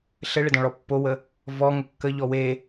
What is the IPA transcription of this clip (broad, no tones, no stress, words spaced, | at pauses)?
ɬɘɭɘdɔ̃ɭɔ pːowə | vɔ ŋəkːə ʎɔwe